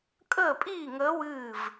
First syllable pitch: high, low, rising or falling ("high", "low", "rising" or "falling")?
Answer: falling